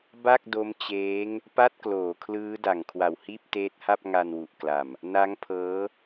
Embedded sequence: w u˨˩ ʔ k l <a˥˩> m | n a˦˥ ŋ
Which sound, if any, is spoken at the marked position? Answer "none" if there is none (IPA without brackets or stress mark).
a˨˩